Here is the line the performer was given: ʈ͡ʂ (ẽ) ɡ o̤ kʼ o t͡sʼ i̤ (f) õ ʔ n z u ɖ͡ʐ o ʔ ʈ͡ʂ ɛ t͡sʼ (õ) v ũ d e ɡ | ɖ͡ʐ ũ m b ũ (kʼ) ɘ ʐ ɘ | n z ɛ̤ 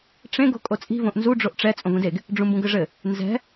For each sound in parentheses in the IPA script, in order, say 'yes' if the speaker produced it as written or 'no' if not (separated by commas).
yes, no, yes, no